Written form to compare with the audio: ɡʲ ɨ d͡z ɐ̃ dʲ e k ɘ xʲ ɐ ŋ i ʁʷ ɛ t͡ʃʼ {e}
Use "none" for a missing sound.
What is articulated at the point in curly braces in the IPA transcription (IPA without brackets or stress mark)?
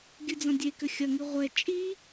i